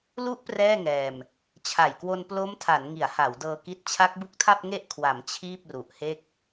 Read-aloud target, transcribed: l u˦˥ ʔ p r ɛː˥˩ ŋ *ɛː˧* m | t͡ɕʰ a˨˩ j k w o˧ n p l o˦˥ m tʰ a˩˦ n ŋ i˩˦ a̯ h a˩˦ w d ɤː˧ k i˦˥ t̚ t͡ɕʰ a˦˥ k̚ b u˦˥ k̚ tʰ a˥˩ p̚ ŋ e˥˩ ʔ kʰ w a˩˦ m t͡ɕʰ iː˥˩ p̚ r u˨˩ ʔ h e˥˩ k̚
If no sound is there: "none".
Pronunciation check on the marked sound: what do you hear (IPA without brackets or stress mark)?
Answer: ɛː˧